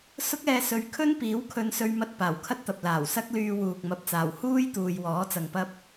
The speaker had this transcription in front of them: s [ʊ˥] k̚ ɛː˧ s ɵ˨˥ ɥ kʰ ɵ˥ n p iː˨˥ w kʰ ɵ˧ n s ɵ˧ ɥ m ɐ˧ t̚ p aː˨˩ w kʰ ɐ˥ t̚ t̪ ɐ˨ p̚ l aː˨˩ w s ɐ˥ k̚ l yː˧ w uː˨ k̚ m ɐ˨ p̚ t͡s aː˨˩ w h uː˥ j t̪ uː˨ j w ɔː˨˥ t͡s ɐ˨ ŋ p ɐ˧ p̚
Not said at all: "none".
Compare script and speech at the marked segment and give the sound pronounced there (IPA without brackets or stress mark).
ʊ˥